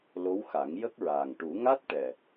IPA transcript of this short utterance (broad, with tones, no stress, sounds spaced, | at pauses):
l o˧˥ w x a˨˩˦ ŋ j ə˦˥ k̚ ɹ aː˨˩ ŋ ʈ u˨˩˦ ŋ a˦˥ t̚ ʈ ɛ˨˩